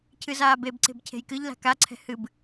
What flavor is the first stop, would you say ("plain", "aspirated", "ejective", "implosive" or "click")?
aspirated